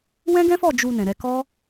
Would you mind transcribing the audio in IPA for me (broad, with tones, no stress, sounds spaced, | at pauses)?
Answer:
w ɛ̃˦ ɡ ɛ̃˦ f ɔ˦˨ d͡ʒ u˧ n ɛ̃˨ ɾ ɛ˧ k ɔ˦